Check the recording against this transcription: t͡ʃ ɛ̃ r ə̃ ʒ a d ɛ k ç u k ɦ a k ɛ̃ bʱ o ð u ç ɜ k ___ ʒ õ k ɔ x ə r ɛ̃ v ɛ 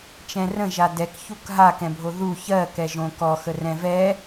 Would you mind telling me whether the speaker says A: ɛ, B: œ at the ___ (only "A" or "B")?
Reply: A